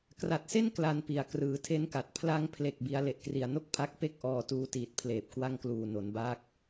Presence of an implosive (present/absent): absent